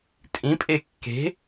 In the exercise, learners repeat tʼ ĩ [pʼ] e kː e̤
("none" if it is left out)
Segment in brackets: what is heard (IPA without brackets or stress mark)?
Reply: pʼ